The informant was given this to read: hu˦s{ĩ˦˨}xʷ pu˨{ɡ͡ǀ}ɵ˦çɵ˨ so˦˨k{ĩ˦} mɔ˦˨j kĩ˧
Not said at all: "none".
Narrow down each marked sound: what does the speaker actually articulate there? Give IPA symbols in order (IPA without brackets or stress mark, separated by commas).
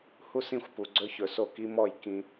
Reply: ĩ˦˨, ɡ͡ǀ, i˦